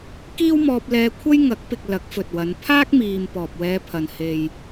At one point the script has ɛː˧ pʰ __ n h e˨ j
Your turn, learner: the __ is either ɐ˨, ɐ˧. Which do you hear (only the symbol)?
ɐ˨